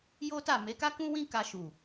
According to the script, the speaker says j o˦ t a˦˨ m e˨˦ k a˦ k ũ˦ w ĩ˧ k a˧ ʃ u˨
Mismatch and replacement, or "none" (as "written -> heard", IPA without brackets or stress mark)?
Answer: ĩ˧ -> ĩ˦